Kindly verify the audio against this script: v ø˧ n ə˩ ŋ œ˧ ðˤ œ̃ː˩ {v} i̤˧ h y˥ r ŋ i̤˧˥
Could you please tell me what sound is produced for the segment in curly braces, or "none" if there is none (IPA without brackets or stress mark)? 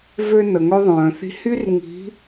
θ